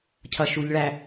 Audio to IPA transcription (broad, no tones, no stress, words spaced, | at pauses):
cʰʌʃuʎɭæ